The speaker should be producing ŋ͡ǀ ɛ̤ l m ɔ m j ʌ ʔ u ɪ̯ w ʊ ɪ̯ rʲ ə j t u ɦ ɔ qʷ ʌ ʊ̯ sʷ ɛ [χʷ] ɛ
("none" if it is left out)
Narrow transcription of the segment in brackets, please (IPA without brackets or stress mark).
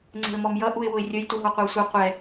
qʷ